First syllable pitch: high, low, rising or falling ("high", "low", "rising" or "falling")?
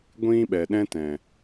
high